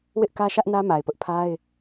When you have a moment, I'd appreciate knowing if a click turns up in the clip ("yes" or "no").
no